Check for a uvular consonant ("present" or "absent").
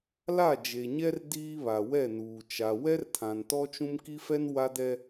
absent